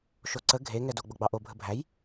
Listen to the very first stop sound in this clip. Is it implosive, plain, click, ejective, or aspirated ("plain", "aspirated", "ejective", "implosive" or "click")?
click